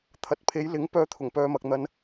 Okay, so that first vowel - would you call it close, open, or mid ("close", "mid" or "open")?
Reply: open